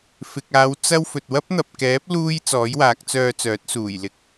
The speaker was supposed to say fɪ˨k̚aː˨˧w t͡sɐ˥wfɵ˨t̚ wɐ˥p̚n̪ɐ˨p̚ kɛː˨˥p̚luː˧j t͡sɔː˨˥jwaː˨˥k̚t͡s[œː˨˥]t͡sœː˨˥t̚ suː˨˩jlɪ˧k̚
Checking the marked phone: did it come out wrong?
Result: yes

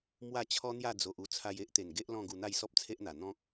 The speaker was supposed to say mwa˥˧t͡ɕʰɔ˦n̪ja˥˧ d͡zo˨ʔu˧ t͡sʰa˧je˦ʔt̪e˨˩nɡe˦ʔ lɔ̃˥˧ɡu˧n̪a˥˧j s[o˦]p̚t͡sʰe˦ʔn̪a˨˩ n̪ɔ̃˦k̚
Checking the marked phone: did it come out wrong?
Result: yes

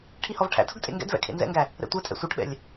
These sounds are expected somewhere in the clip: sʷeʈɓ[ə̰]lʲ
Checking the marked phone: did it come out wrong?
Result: yes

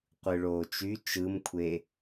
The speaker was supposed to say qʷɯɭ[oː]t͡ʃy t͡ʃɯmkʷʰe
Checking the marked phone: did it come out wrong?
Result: no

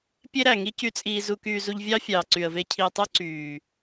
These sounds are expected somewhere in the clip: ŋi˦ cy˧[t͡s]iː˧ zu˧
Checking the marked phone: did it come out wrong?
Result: yes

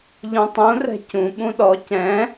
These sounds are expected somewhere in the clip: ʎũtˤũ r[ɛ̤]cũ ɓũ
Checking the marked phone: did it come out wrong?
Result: no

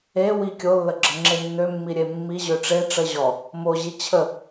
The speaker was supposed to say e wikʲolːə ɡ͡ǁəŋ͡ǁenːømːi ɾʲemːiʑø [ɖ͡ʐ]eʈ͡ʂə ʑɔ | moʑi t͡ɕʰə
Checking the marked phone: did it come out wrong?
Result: yes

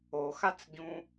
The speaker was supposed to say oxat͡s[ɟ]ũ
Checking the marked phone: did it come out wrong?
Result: no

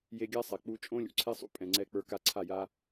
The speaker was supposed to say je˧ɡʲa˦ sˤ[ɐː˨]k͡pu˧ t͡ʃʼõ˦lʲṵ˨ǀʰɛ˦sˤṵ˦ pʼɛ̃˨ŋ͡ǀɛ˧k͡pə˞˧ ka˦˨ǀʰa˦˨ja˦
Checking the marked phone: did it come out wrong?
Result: yes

